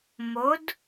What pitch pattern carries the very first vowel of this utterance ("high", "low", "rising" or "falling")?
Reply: rising